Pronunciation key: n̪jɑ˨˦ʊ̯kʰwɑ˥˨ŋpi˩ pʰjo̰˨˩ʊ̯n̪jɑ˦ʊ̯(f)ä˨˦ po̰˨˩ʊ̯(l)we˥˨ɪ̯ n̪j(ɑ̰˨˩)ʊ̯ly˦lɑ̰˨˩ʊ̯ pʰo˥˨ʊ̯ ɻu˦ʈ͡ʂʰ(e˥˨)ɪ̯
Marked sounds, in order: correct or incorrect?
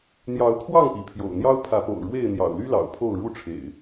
incorrect: pʰ, incorrect: ɻ, correct, incorrect: ḛ˨˩

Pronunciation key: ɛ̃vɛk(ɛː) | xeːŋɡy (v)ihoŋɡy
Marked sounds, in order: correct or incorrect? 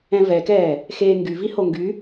correct, correct

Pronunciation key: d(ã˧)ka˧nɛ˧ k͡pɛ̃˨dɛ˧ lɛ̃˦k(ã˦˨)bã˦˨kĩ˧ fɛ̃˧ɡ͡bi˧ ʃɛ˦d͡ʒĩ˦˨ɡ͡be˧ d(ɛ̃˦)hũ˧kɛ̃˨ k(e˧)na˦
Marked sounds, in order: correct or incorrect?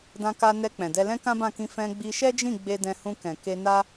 correct, incorrect: ã˦, incorrect: ɛ̃˧, correct

